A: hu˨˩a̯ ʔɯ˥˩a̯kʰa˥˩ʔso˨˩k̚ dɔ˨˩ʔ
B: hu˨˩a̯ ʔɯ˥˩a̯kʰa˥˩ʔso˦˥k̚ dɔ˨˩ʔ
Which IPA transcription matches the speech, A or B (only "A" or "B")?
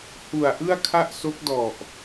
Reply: B